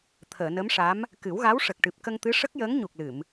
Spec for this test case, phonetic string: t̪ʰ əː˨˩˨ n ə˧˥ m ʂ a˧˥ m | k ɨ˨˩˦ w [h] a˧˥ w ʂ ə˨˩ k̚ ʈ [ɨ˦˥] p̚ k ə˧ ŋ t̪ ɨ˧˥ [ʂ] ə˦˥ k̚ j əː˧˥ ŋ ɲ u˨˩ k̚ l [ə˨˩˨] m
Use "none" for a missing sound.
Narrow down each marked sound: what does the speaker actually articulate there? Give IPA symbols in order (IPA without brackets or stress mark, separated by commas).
ɣ, ɨ˨˩, ʂ, ɨ˨˩˨